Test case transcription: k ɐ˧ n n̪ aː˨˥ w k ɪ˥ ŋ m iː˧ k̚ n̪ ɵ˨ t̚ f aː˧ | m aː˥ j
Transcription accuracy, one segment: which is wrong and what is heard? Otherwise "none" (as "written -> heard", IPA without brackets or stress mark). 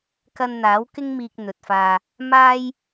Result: none